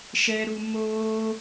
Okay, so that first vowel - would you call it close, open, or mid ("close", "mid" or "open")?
mid